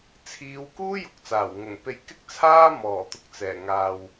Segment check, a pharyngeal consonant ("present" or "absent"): absent